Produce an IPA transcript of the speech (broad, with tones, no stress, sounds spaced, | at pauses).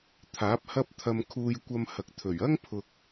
t̪ʰ aː˨˥ p̚ h ɐ˥ p̚ t̪ʰ ɐ˧ m kʰ uː˧ j kʷ ɐ˧ m h ɐ˨ k̚ t̪ʰ ɵ˨˩ ɥ ɐ˥ ŋ pʰ ʊ˨ k̚